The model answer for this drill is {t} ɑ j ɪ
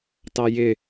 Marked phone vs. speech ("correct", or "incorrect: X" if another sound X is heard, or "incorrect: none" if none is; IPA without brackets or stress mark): correct